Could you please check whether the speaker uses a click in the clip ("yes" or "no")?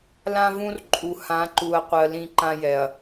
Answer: yes